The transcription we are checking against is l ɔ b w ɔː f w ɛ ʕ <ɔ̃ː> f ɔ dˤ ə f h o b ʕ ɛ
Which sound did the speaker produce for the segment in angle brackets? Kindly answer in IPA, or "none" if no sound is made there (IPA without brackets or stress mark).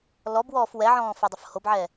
ɔ̃ː